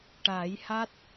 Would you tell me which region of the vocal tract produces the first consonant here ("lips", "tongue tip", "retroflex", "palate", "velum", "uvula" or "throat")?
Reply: retroflex